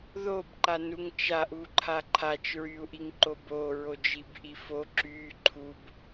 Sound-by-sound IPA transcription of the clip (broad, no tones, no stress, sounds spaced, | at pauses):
ð o b ǃ a n u ŋ t͡ʃ a ʔ u ǃʰ a ǃʰ a t͡ʃ ɹ y u̯ ʔ i ŋ ǃ o b o ɹ o d͡ʒ i b ʔ i f o ǁ y ǃʰ u b